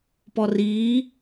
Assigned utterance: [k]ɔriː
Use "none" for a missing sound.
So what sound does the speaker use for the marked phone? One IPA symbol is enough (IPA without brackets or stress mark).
p